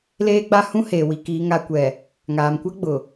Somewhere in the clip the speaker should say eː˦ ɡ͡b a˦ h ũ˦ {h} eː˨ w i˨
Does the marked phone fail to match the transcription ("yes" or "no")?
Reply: no